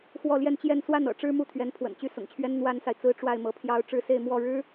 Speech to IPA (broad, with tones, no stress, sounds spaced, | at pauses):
x w ɔ˥˧ l j ɛ˥˧ n t͡ɕ j ɛ˥˧ n s w a˥˩ n ɤ̰˨˩ ʈ͡ʂ ɻ̩˥˧ m u˥˩ t̪ʰ ɥ ɛ˧˥ n pʰ w ə̰˨˩ n t͡ɕ y˥˩ s ʊ̰˨˩ ŋ t͡ɕʰ ɥ ɛ˥ n n̪ w a˥ n s a˨ ɪ̯ t͡s ɹ̩˥ ʈ͡ʂ w a˥˩ ɪ̯ m ɤ˧˥ pʰ j ɑ˥ ʊ̯ ʈ͡ʂ ɻ̩˥˧ s e˥˧ ɪ̯ m w ɔ˥˩ ɻ ɻ̩˥